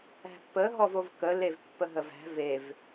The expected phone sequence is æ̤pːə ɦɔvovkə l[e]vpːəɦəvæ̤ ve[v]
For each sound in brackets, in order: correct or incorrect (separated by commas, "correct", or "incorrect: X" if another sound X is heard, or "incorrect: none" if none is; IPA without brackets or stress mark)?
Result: correct, correct